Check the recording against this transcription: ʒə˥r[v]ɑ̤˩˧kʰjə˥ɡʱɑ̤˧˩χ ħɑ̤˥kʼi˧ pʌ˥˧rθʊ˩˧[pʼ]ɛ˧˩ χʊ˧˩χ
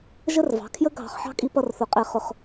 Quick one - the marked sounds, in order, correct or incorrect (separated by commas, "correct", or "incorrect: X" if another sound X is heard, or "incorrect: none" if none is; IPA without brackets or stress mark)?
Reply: correct, incorrect: qʼ